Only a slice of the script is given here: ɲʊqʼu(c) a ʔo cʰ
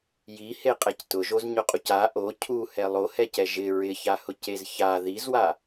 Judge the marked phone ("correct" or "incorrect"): correct